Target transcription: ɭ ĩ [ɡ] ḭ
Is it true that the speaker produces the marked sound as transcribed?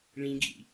yes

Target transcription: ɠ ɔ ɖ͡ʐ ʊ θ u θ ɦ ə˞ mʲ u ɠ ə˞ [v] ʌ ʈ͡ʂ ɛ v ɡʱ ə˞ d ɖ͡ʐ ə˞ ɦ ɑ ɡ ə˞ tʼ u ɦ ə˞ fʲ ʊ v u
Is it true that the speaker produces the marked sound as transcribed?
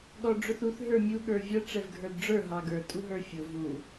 no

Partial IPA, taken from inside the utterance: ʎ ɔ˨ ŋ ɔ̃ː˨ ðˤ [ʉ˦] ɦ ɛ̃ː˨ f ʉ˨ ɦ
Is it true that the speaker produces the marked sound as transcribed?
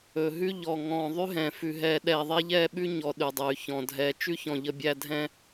yes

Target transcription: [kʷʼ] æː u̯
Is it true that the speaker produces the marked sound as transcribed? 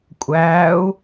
yes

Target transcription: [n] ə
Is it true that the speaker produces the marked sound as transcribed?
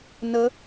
yes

